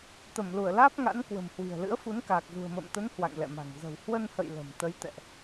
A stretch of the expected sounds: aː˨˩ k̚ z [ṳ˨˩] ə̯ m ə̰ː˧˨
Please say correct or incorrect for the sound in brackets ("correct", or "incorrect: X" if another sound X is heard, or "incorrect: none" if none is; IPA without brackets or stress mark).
correct